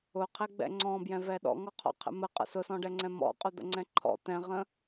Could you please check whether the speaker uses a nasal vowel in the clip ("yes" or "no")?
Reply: yes